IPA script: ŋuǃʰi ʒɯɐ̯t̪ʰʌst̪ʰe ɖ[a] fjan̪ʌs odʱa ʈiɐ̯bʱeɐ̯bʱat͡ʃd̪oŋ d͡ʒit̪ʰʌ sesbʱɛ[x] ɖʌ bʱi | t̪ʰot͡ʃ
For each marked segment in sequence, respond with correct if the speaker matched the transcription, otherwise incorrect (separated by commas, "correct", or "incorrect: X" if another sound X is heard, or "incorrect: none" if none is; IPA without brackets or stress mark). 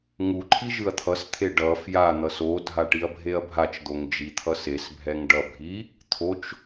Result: incorrect: ʌ, incorrect: ŋ